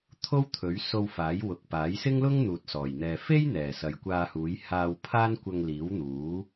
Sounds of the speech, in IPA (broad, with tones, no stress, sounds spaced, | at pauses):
t̪ʰ o˥ w t̪ʰ ɵ˨˥ ɥ s o˧ w f aː˨˥ j w ʊ˨ k̚ p aː˨˥ j s ɪ˥ ŋ l ʊ˥ ŋ n̪ uː˨ t̚ s ɔː˨˩ j n̪ ɛː˨ f e˥ j n̪ ɛː˨˩ s ɐ˨ j kʷ aː˧ h uː˨˥ j h aː˧ w pʰ aː˥ n kʷ ɐ˧ ŋ l iː˨˥ w n̪ uː˨˥